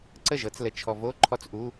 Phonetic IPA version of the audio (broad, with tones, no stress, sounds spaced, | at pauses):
ǀ ə˥˩ ʒ ɤ˩˥ t͡s l ə˨ t͡ʃʰ ɔ˨ v o˧˥˧ ǃʰ ɔ˦˥ t͡s ʔ u˧˥˧